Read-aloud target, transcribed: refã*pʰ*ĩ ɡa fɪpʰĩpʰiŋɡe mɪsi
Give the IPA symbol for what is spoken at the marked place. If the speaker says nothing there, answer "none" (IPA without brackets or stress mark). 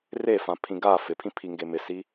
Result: pʰ